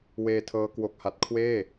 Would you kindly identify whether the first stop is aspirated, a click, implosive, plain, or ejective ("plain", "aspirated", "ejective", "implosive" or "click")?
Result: aspirated